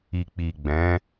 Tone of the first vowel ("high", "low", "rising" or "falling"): low